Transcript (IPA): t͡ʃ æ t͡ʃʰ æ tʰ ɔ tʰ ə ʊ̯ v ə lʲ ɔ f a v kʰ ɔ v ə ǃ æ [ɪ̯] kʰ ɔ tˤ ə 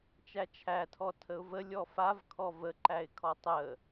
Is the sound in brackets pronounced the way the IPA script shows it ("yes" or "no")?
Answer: yes